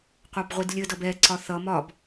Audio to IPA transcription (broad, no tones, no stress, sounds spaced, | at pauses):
qʷ ɑ b ʁʷ i d lʲ ə d ʌ b ɛ ǀ ɒ θ ʌ m ɒ b